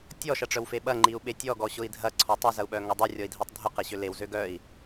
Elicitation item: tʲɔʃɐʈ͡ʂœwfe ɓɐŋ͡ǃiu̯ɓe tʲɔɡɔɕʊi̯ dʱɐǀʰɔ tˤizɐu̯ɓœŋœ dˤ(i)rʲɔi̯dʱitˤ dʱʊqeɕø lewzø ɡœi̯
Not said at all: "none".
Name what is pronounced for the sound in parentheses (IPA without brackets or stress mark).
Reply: i